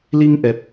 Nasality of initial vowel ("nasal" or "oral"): oral